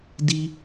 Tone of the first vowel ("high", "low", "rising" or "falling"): high